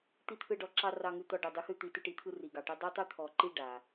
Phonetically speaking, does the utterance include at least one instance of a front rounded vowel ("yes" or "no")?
yes